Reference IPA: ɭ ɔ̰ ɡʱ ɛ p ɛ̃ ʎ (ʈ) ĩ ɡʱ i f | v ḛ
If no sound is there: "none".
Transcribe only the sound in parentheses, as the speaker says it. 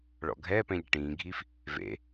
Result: ʈ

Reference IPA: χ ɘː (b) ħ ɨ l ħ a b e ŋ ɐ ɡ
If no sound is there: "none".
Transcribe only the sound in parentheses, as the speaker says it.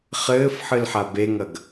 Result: f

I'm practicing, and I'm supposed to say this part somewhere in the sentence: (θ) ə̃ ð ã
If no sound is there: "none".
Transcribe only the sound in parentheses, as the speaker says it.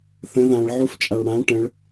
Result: θ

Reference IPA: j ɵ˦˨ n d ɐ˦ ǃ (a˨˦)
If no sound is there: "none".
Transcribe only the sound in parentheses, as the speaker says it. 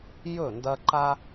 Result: a˦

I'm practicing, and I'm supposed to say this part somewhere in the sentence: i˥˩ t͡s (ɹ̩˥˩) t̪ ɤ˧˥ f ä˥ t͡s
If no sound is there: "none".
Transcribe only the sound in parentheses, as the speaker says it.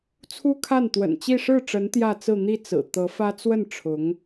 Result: ɹ̩˨˩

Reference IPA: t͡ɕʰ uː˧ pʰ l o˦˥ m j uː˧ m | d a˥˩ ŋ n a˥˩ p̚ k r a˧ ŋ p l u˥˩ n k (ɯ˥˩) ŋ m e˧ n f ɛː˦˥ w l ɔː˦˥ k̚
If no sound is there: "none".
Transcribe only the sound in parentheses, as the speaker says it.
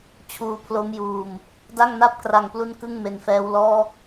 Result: ɯ˥˩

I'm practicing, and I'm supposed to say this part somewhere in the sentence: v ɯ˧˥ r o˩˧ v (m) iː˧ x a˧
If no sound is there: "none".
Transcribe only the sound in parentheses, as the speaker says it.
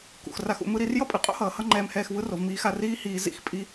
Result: m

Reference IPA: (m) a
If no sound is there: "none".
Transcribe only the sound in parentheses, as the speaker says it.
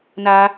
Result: n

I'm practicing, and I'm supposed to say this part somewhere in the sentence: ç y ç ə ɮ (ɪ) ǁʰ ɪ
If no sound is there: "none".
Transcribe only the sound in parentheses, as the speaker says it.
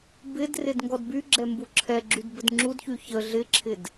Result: ɪ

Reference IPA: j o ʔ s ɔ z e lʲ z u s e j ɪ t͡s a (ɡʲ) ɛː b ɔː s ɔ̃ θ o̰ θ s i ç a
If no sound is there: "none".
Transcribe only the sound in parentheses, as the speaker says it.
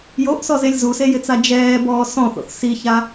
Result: d͡ʒ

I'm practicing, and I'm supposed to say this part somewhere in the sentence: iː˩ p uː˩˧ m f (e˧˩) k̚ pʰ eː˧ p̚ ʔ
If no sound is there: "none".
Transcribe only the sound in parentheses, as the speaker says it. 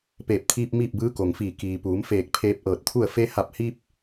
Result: eː˧˩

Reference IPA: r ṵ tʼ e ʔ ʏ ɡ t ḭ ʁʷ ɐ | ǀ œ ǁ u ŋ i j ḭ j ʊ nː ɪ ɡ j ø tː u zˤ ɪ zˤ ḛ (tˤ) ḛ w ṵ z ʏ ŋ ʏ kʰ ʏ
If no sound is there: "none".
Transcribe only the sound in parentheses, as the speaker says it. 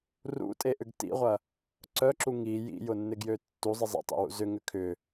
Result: tˤ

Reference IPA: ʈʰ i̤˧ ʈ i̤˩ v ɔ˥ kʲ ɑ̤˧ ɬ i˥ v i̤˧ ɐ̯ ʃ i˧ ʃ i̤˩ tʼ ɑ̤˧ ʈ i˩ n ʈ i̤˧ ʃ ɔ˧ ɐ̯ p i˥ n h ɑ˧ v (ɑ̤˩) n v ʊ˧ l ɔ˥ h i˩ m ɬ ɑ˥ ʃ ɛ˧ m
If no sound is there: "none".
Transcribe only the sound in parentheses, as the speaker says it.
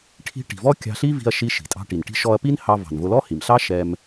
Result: ɑ̤˩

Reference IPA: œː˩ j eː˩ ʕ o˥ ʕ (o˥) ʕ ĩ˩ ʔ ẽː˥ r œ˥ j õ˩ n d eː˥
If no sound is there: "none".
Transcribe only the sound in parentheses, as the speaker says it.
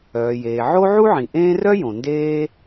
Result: u˥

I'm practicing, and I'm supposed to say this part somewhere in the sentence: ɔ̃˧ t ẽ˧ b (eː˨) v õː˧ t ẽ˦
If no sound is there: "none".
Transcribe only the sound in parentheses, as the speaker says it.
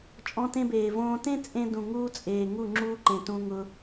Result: eː˨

